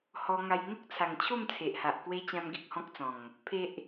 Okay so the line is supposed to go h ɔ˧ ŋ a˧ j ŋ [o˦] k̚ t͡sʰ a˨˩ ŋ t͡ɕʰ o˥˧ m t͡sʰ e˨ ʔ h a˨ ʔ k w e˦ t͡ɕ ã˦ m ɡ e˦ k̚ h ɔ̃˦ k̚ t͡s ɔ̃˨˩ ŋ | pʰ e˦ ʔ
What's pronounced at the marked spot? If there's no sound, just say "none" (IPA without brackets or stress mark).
o˦